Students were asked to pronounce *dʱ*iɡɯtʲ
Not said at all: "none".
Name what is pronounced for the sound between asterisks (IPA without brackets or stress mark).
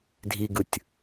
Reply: dʱ